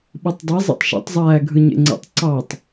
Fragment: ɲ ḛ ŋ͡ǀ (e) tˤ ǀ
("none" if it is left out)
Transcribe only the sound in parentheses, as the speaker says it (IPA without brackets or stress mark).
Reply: ḛ